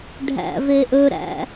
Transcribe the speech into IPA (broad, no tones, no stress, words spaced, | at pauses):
ɖʱæ̰veʔɵɾæ̰